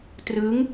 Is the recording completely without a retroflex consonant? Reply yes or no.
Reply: yes